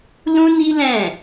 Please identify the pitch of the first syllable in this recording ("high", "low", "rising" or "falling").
high